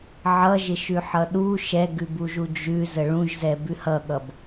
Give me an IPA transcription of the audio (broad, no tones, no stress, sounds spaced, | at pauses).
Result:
ʕ ʌ ʒ ɪ ʃ ʉ ħ ʌ ɗ u ʃ ɛ ɡ ʉ b u ʒ u d͡ʒ ʉ z ə ɭ ũ ʒ z ɛ b ʉ h ʌ ɠ ʌ b